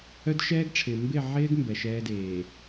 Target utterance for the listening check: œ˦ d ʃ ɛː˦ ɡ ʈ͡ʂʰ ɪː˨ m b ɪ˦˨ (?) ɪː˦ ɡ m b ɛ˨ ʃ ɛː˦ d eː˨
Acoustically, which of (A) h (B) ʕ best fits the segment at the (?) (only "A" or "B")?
B